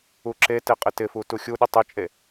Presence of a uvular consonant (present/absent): present